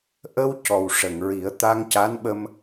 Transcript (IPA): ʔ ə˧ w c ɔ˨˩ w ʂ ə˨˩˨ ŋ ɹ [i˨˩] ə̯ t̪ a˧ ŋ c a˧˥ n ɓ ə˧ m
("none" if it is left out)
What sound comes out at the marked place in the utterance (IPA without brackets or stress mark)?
i˨˩˦